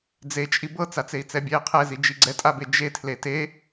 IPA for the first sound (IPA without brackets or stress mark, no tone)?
d͡z